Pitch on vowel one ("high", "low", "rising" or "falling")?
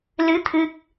rising